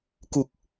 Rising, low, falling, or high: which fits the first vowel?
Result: low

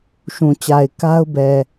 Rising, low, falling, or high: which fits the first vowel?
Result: low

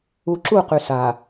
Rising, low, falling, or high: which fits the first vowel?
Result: low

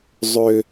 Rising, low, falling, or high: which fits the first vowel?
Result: high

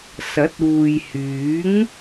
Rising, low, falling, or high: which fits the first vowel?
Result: rising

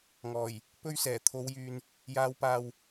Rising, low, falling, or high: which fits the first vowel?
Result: low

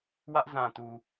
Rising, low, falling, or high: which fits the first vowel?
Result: high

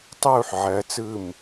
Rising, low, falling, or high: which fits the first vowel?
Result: falling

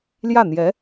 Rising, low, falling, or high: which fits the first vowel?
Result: falling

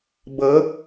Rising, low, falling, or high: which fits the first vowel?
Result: rising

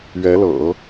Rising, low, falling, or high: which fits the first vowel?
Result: rising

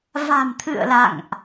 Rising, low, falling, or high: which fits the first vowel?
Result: low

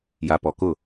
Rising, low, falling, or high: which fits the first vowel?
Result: low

